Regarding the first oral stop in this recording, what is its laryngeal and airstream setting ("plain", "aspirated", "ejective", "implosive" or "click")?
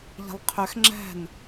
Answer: aspirated